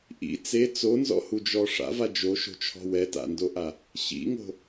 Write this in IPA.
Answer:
ʔḭ t͡se t͡sonzɔ̰hud͡ʒɔ ʂa̰va d͡ʒoʃo̤t͡ʃʰɔ̤ wɛta̰ndoʔa | ɕḭŋo̤

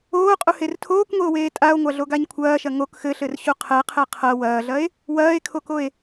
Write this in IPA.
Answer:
oːqʼuher tʰoːkŋʷeo̯weː tʼao̯ŋʷaɮoɡaɲ kʷʰɐːʃɐ ŋok xɘɬɘrɕu qʰɛqʰɛ qʰɐ wɐːɮɐe̯ | wɐːe̯kʰokoe̯

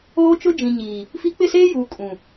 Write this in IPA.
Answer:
oː˦t͡ʃʊ˦ d͡ʒĩ˨ ɲiː˨ | fi˦ k͡pɪ˦˨seː˦juː˨ kʼũ˨

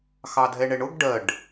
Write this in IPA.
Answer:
xɑdʱɛɳɛɳʊɡ ɖɜɖ

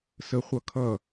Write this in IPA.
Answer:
səχʷʌ kʰʌ

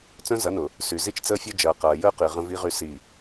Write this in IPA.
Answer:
t͡sœ̃˦zɐ˨˦nʊː˨ | sy˨zi˦t͡ʃ t͡səː˦fʲœ˦ d͡ʒɐː˨qɐː˨jəː˦qi˨ ʁə̃˦vi˦ʁy˦ si˦˨

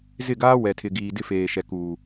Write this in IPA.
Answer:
zɪ˦˨ɡaː˦ wɛ˨tʰɪ˨ɡiː˨ dɪ˦feː˨ʃɛ˨ kuː˨

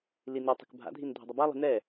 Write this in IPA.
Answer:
linitˤə̤k bʱa̰dʱin dʱə̤dˤəbalˠi̤ nɛ

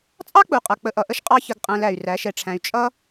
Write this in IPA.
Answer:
t͡sʼɑ˦k͡pu˨qʼʌ˨ k͡pə˧ʔʌ˨ʔə˦ʃ qʼɑ˦çə˧ɡqʼæ̃˧læ˨y̯ ræ˨˦ʃɛ˧ʈ͡ʂʰæ̃˧y̯ t͡ʃʼʌ˦

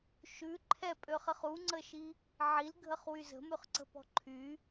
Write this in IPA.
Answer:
ʃʉ ǃʰɛpʼøχəχ uŋ͡ǀəʃi | ʕilɡʱəχwy zə̤mʉχǀə̤pɔ̤ ǃʰy

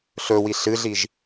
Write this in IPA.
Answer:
ɬɵwi ɬɨɮiʒ

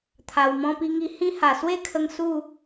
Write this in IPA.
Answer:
t̪ʰa˨˩wmɔ̃˧pi˧ŋi˧ hĩ˦ ha˨˩swe˥˧kʰə˧ŋ su˥˧

